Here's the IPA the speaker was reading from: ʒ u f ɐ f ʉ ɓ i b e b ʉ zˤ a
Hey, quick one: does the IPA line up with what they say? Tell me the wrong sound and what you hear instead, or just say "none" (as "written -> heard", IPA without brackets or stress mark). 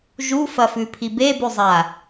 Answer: ɓ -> pʰ